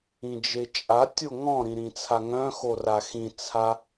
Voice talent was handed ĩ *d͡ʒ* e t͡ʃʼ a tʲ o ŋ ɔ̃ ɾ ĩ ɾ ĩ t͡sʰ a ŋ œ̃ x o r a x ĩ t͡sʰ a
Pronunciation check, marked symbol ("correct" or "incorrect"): correct